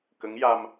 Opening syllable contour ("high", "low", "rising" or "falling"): rising